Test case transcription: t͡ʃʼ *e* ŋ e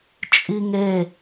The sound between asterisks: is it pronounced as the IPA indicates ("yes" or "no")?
no